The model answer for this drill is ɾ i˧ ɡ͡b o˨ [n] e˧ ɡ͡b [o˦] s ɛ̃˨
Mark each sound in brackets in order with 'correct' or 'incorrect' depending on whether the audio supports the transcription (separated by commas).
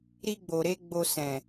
incorrect, incorrect